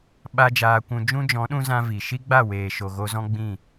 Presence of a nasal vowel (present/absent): present